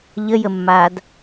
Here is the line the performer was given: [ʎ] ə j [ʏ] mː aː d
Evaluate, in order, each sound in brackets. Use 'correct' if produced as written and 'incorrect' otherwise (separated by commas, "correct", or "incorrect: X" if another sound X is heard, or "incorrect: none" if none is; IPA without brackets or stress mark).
correct, incorrect: ə